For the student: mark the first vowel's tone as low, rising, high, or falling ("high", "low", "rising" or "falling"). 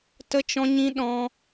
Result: high